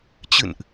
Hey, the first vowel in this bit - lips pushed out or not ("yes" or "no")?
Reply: no